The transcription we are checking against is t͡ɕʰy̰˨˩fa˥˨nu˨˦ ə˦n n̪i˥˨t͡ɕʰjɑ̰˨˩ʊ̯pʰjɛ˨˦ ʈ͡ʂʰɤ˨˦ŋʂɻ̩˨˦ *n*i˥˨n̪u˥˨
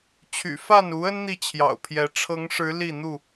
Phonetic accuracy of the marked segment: incorrect: l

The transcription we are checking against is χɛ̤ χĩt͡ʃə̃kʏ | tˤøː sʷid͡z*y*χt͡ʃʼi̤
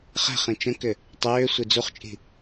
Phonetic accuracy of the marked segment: incorrect: u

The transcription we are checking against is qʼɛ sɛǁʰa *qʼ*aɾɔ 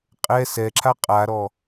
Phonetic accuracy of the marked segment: correct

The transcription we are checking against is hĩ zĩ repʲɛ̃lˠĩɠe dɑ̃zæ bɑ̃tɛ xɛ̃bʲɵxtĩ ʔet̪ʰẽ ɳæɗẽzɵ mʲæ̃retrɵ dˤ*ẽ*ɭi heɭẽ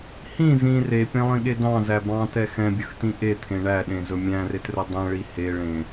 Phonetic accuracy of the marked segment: incorrect: ɛ̃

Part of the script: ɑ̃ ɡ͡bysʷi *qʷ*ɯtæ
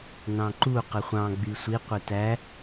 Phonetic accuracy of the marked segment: correct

